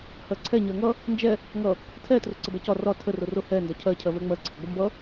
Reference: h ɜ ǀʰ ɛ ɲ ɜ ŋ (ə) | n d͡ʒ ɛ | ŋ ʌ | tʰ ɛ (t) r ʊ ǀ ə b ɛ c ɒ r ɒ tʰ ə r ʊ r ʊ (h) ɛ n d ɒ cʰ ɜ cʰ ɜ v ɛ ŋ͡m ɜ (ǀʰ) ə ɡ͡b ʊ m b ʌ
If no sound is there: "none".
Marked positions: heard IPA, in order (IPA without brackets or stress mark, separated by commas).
ʌ, t, h, ǀʰ